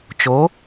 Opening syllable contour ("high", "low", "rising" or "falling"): rising